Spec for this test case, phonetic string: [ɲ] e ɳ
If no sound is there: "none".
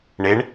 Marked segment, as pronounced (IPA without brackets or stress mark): ɳ